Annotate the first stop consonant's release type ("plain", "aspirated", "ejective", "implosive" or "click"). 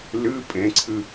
ejective